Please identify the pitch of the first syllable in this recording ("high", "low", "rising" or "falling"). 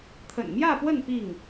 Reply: low